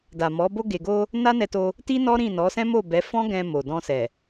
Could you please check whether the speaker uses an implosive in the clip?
no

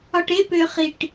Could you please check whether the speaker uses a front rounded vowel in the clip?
yes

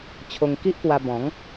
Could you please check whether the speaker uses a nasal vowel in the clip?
yes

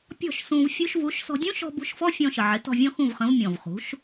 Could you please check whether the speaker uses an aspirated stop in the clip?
no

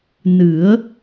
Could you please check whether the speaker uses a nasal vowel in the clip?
no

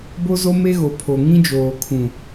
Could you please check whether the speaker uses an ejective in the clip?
no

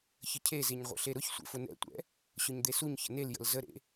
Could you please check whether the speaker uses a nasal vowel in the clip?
no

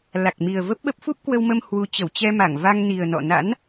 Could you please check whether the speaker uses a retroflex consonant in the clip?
no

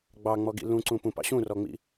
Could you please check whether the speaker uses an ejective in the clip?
no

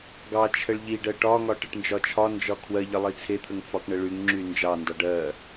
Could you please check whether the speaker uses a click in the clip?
yes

